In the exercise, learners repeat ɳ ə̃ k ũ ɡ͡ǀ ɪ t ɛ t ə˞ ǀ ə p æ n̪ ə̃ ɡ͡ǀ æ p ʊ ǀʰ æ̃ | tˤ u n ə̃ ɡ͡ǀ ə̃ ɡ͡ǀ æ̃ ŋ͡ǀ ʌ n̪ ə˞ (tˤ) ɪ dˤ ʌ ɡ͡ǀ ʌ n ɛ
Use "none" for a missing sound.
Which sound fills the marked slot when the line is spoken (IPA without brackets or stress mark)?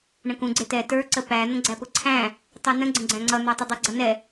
tˤ